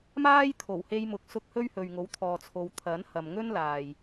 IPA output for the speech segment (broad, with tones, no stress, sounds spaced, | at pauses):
m aː˥ j t̪ʰ o˨˩ w h e˧ j m ʊ˨˥ k̚ s ʊ˧ k̚ h ɵ˥ ɥ h ɵ˨ ɥ ŋ o˨˥ w t̪ʰ ɔː˨ t͡sʰ o˨˧ w t̪ʰ ɐ˨˥ n h ɐ˨ m ŋ ɵ˥ n l aː˨ j